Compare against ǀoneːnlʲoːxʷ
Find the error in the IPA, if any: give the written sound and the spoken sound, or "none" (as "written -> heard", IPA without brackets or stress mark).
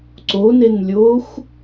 eː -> e